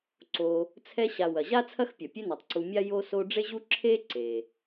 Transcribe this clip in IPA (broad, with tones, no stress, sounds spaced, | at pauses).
ǀ o˨ | t͡sʰ ɛ˦ ɕ a˨ w ɐ˩ ʑ a˥ t͡sʰ ɐ˥ x pʲ ɐ˩ pʲ e˦ n o˩ tˤ ǀ u˨ mʲ a˥ j o˦ s o˦ ɖ͡ʐ e˥ ʑ u˥ ǁʰ e˥ ǀ e˩